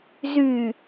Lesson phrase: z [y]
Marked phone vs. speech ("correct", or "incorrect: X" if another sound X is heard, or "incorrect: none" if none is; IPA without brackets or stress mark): correct